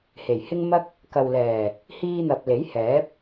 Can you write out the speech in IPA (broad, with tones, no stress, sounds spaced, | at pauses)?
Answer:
h e˨˩ j h ɪ˥ ŋ m ɐ˥ k̚ | k ɐ˨ w l ɛː˨˩ | h iː˧ n̪ ɐ˨ p̚ l e˨˥ j h ɛː˨˥ p̚